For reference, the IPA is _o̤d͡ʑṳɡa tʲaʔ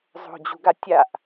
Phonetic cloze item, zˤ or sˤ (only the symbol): zˤ